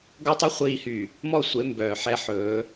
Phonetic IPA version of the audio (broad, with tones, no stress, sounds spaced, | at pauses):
ɡ ɔ˦ tˤ ɛ˦ χʷ iː˨ h y˨ | m ɔ˦˨ sʷ e˨˦ m b œː˨ ħ ɛ˦ ħ ɵː˨˦